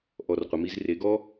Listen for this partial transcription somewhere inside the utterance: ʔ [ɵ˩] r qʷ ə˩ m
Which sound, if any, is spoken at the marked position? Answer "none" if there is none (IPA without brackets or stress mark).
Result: ɔ˩